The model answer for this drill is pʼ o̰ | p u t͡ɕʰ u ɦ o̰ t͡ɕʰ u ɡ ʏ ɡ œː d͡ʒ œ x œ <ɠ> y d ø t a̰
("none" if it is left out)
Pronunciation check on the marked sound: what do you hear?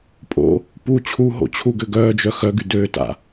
ɡ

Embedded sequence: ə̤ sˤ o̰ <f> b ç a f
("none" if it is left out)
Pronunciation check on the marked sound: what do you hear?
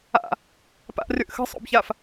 none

